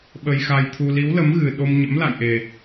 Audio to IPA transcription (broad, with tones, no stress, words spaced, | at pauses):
ɓə˧jxa˧jt̪ʰu˧ li˨˦wlə˨˦mɣɨ˨˩ ɗo˧mɲə̰˧˥mla̰˧˨jʔe˨˩